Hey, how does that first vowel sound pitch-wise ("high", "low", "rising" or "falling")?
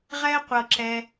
high